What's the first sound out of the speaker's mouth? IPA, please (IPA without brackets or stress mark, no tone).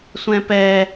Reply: sʷ